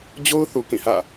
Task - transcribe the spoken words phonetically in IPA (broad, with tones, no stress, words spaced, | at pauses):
d͡ʑo˦ʊ̯ θu˨kĩ˦˨hä̰˦˨